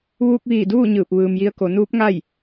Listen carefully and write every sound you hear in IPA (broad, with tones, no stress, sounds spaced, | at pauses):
ʋ uː˧ k̚ ʋ iː˧˩ d uː˥˨ ɲ ɯː˧˩ p̚ ʋ ɯː˩ m j i˧ ə̯ k o˩˧ n uː˧˥ p̚ ŋ a˥˨ j